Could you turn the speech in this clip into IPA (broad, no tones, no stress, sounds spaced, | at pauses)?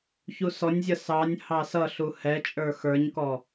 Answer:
ç u s ɔ nʲ zʲ ʌ s ɑ nʲ h ɑ s ʌ ɬ u h ɛ t͡ʃʼ ə˞ x ə˞ ɲ k ɔ